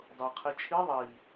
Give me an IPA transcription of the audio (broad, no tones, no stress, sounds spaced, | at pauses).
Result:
dˤ ɤ qʰ i t͡ʃʰ i ðˤ i